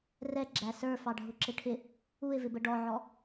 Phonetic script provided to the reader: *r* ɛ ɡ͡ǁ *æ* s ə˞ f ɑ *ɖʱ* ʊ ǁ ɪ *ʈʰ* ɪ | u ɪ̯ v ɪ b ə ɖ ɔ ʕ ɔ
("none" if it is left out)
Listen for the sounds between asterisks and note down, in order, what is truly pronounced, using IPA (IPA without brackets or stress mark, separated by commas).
r, æ, ɖʱ, ʈʰ